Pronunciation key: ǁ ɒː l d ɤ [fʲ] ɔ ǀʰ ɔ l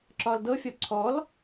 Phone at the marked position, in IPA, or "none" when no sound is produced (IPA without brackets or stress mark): fʲ